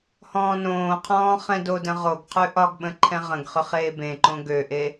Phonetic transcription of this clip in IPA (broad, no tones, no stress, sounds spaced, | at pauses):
h ɔ̃ː n õː qʰ ɔ̃ː χ ɛ̃ d o d ə̃ ʁ o ɡ qʰ ʉ ʔ ɒ ɡ ɓ ə̃ ǃʰ ɛ̃ ʁ ə̃ ɡ χ ø χ eː b ẽ ǃ õ ɡ ø ʔ e